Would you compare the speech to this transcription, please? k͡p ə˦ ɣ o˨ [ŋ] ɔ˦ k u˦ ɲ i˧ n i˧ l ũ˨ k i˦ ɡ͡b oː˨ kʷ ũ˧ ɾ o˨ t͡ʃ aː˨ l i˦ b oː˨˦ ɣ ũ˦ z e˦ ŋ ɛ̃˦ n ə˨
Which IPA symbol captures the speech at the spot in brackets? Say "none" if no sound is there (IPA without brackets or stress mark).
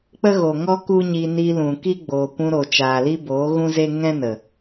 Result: ŋ